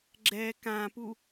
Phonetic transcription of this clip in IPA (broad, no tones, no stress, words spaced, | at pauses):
ɡ͡ǁɛ kãpu